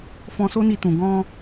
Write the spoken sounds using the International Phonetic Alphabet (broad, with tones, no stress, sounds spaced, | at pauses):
f ɔ̃˧ s o˦ n i˧ t ũ˨ ɡ ɔ̃˧